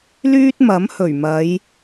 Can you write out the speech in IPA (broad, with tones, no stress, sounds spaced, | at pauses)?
l yː˥ t̚ m ɐ˨˥ m h ɵ˨˩ ɥ m ɐ˨˧ j